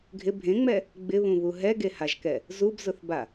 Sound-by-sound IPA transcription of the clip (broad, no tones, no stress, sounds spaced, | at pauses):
ɡʱ ɪ bʱ ẽ ŋ͡m ɛ | ɡ͡b ɪ β ũ β u ɦ ɛ ɡ e h a ʒ k ɛ | z u b z ʊ θ b a